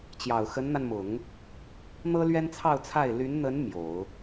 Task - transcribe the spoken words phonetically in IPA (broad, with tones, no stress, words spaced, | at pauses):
t͡ɕjɑ˨˩ʊ̯xə˧˥nn̪a˧nmʊ˨˩˦ŋ | n̪ɤ˥lɥɛ˥nt͡sʰɑ˥˧ʊ̯t͡sʰa˥˩ɪ̯ ly˧˥nn̪ə˧˥n mjo˨˩˦ʊ̯